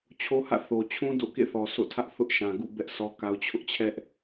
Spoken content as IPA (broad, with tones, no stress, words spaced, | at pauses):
t͡ɕʰo˦hä̰˦˨ θo˨t͡ɕʰũ˦ do̰˦˨ kḛ˦˨θɔ˨ so̰˦˨tʰä˦ʔ θʊ˦ʔʃã˨ɡṵ˦˨ bɛ˦ʔ sɔ˦ka˦ʊ̯ t͡ɕʰʊ˦ʔt͡ɕʰɛ˦ʔ